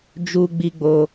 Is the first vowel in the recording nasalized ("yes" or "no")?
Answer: no